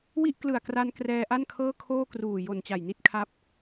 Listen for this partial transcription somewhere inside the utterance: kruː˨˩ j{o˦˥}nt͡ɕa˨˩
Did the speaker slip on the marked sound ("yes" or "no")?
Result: yes